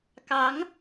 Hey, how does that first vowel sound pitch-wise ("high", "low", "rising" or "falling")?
rising